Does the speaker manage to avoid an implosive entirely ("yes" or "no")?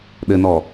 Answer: no